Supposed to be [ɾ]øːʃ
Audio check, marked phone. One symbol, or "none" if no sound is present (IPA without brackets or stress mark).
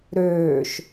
ɾ